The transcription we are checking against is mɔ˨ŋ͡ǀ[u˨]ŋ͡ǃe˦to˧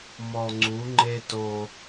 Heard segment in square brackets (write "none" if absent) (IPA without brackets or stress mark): u˨˦